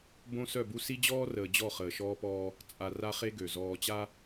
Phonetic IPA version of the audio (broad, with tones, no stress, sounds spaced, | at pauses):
b õ˦ s œ˦˨ b u˦ s i˦ d͡ʑ ɔː˦ r əː˨ d͡ʑ ɔ˦˨ χ əː˨ ʃ ɔː˦ p ɔː˦ | t͡sʼ a˨ r a˦ χ e˦ ɡ ø˨ z ɔː˨ t͡ɕ a˦